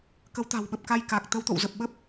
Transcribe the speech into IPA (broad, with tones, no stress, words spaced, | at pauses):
kə˨˦wt̪a̤˨˩wɓə˨˩p̚ ka˧j ka˨˩k̚ t̪ə˨˦wt̪o̰˧˨wzə˨˩p̚ɓə˦˥p̚